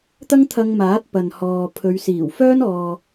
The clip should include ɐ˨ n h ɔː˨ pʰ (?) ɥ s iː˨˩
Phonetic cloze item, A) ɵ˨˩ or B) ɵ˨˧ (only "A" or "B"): B